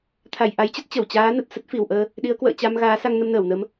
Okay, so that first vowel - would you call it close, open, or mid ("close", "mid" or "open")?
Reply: open